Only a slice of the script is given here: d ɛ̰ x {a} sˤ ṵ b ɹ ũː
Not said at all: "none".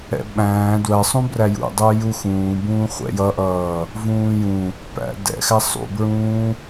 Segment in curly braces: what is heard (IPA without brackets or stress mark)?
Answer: æ